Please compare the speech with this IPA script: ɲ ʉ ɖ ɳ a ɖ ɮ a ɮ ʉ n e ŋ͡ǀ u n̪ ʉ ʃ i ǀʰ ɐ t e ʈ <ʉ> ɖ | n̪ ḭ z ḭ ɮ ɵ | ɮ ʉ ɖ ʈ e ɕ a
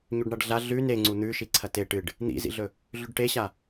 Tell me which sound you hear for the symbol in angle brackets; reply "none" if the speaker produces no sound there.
ɨ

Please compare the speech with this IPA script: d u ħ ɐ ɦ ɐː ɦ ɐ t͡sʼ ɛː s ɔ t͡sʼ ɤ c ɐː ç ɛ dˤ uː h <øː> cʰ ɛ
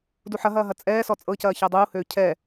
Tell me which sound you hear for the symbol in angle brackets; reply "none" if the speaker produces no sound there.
øː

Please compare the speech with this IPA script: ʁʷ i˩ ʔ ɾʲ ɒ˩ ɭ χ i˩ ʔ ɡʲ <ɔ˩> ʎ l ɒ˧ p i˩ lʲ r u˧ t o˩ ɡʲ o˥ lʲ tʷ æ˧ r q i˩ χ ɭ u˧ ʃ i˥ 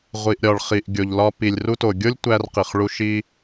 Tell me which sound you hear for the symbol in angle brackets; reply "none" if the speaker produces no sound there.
o˩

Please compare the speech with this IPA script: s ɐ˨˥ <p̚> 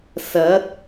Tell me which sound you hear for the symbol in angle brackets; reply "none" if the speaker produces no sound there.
t̚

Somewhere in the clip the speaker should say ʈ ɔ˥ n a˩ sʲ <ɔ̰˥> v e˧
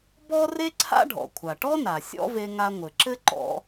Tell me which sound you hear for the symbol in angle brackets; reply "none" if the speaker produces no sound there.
ɔ̰˥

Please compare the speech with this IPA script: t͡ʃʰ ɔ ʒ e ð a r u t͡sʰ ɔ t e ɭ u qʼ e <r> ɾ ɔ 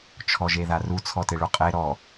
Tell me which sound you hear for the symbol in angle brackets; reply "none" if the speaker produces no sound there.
none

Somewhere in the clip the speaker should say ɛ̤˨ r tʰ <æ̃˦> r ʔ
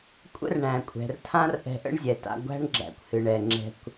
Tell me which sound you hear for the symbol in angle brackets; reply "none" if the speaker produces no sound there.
ã˦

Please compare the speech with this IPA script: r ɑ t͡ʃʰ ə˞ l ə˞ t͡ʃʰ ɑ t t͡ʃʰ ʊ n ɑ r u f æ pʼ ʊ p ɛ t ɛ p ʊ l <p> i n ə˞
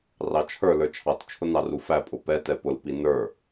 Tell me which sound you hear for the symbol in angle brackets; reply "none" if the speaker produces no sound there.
p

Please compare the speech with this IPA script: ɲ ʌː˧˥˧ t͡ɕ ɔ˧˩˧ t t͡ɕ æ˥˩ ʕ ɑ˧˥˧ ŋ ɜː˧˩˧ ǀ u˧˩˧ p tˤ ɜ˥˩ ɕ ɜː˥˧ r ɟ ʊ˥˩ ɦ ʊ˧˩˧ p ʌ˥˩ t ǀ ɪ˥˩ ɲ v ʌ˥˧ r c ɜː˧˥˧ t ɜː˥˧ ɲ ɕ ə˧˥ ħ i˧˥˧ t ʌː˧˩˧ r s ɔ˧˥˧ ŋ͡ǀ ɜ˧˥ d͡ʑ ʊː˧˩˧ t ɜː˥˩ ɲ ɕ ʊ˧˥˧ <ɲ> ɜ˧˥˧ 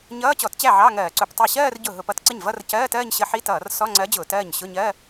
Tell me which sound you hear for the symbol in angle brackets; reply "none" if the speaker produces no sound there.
ɲ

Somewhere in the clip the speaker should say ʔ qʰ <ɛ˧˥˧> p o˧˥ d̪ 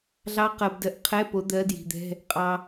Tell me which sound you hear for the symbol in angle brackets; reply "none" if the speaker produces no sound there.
ɛ˧˥˧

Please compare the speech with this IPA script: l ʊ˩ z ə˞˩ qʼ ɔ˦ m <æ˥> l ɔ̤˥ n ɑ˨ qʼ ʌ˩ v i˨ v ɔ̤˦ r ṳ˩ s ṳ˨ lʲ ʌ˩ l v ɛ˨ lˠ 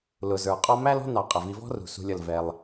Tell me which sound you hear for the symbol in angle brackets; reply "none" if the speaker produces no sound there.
æ˥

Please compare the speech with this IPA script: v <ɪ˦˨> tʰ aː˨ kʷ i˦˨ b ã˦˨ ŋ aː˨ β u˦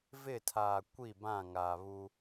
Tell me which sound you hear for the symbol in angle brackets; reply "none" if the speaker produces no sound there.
ɪ˦˨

